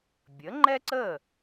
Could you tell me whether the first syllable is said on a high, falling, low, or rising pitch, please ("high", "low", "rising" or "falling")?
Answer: rising